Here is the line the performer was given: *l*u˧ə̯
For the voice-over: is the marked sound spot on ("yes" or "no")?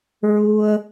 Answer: no